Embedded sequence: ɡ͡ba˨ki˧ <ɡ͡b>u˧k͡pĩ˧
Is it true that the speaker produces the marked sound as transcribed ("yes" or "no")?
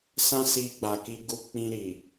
no